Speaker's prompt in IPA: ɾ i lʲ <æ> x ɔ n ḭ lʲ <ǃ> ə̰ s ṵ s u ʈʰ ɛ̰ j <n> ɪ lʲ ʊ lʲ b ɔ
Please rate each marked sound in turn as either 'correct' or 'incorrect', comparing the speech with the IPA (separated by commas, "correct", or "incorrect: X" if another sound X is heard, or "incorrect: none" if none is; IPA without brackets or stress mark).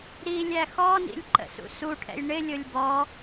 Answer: correct, correct, incorrect: ɳ